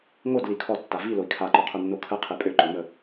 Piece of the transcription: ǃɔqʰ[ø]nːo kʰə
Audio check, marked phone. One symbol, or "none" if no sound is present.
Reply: ø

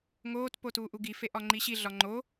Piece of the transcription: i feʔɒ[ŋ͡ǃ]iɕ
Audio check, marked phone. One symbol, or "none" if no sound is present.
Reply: ŋ͡ǃ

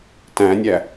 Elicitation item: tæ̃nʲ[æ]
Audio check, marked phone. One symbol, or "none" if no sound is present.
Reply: æ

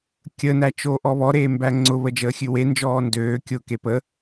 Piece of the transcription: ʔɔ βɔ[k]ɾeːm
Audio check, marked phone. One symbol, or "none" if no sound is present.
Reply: none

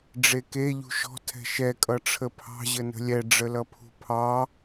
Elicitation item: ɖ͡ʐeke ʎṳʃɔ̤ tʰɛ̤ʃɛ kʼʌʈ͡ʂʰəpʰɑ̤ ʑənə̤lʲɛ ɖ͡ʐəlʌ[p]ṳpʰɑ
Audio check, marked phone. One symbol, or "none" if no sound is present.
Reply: pʰ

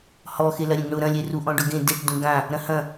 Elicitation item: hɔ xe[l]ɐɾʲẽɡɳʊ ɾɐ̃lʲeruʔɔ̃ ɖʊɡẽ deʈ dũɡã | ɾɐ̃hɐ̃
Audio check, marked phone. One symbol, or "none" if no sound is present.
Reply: l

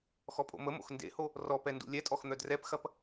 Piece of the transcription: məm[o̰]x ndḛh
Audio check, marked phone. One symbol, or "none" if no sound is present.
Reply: o̰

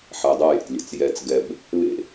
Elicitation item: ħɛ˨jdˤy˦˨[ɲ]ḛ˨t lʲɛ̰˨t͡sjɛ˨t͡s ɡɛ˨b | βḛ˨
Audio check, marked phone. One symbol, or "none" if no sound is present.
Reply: j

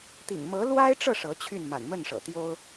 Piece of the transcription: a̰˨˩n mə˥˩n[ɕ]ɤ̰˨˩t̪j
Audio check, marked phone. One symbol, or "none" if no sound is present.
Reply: ʂ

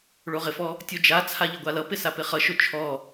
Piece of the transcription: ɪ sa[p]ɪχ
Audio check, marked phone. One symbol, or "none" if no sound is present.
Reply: p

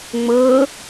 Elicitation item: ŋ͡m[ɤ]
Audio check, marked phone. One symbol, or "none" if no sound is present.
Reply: ɤ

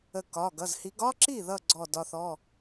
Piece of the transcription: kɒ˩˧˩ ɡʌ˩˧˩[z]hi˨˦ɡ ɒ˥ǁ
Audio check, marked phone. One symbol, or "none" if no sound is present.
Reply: z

